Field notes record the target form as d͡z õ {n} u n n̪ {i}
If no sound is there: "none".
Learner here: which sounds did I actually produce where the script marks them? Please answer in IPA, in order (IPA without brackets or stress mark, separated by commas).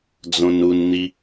n, i